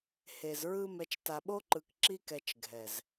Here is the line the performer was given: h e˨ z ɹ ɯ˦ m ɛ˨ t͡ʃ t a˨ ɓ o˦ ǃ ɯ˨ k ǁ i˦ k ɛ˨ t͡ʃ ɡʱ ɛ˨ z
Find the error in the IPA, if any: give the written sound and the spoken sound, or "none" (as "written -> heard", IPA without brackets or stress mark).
none